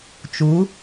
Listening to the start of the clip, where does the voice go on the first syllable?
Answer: rising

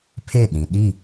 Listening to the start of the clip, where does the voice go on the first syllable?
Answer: falling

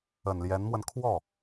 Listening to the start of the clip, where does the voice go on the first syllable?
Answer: low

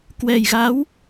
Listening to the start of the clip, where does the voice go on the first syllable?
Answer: low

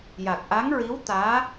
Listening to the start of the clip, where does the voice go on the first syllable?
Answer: low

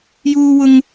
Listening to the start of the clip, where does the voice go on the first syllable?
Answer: high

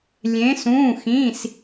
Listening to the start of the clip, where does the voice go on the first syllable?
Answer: rising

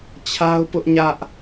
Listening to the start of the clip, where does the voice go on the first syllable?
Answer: high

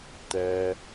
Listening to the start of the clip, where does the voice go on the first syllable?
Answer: low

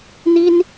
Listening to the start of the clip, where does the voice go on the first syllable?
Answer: high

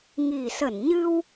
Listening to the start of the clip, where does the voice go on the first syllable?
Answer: low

